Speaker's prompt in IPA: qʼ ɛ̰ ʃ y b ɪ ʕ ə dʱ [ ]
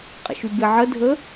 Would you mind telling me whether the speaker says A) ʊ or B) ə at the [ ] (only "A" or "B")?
B